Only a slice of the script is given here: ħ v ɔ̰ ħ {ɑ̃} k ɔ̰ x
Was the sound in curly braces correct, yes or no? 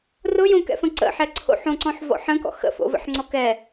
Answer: no